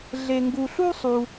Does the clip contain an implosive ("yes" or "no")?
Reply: no